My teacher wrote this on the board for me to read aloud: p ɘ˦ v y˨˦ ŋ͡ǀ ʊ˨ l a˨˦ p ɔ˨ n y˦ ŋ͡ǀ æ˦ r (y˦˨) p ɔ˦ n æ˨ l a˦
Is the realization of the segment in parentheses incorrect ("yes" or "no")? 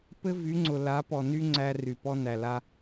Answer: yes